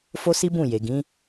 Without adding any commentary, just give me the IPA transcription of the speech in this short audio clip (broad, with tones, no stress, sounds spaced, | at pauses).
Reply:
f o˦ s i˦ b ũ˦˨ j e˨ ɡ ĩ˨˦